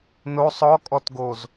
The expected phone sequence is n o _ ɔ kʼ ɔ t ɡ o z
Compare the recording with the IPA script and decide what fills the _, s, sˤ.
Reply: sˤ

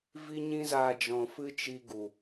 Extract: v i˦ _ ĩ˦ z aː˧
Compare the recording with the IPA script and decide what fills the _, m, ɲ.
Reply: ɲ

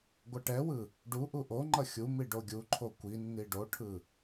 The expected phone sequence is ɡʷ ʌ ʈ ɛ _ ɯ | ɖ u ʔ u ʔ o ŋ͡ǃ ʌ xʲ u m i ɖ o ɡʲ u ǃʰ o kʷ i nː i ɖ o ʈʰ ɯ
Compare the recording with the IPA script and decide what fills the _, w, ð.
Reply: w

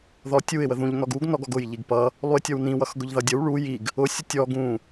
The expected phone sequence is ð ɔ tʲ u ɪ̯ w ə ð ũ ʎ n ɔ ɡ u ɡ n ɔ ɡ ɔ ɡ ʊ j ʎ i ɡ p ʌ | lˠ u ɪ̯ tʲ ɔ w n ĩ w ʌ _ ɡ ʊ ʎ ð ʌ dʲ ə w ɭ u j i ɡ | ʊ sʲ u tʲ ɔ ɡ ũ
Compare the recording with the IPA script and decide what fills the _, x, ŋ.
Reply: x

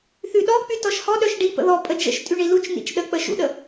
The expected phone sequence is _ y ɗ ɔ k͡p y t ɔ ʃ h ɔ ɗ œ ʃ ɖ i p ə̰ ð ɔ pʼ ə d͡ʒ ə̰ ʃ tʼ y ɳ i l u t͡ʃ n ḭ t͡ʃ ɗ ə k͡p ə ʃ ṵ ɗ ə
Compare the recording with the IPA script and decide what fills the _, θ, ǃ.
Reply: θ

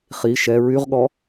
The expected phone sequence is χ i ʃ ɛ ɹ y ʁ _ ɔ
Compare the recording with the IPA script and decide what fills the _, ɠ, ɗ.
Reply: ɠ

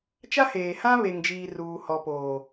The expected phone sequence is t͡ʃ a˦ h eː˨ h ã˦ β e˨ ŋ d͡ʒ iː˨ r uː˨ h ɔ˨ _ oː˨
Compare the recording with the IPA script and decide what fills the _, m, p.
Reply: p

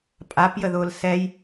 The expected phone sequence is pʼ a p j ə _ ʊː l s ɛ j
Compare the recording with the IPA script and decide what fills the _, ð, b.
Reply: ð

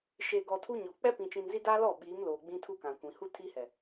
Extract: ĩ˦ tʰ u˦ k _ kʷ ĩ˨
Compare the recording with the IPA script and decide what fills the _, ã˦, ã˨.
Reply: ã˨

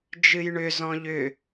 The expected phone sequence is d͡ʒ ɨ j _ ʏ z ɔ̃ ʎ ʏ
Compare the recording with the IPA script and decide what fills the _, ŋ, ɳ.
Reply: ɳ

